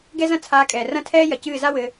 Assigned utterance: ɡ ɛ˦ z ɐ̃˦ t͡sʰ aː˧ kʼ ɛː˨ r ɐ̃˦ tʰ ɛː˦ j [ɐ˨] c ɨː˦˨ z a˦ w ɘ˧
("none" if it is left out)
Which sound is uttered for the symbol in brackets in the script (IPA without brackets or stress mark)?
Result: ɐ˨